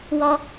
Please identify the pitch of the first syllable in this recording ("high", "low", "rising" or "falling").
high